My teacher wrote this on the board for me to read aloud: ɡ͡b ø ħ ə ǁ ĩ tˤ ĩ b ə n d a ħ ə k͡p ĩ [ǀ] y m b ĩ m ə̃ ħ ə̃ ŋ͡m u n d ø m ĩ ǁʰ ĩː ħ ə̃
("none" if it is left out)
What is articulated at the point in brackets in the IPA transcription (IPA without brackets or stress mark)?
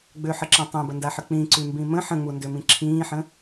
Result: ǀ